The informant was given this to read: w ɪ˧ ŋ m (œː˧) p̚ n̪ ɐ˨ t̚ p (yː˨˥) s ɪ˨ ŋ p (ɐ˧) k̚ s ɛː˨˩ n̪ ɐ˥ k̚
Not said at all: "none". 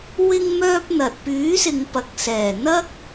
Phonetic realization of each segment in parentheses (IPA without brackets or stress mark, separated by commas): œː˧, yː˨˥, ɐ˨